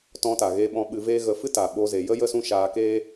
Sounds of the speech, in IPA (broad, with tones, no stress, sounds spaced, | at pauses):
t ɔ̃˧ t a˨ ɣ eː˧ ɓ ɔ̃˧ ɓ ɨ˧ v eː˦ ɣ ə˧ f ɨ˦ t a˨ ɓ o˧ z e˨ j ə˦ j ə˦ s ũ˦ ʃ aː˧ k eː˦